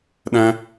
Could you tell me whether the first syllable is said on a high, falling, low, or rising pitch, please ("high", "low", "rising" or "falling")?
high